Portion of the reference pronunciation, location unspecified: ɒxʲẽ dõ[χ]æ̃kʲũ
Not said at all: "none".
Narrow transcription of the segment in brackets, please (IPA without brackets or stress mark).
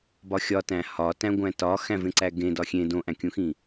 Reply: ʔ